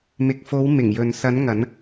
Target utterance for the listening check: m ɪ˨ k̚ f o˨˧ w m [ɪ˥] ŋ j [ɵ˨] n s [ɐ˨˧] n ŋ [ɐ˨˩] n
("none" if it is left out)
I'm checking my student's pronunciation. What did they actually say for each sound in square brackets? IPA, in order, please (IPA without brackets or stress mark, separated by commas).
ɪ˨˩, ɵ˨, ɐ˨˧, ɐ˨˧